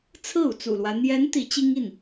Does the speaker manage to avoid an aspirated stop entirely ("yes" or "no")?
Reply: no